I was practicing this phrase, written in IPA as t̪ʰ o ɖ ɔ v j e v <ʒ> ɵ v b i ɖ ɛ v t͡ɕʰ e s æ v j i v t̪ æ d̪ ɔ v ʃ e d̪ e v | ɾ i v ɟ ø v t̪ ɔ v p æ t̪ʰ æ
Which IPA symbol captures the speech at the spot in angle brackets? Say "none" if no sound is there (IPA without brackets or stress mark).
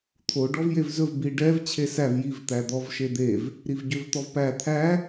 z